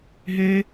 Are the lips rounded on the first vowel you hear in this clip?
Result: no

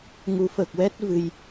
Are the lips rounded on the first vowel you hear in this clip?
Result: yes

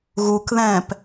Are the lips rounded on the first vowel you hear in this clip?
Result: yes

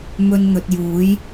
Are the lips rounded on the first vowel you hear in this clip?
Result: yes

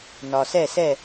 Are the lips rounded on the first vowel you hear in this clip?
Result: yes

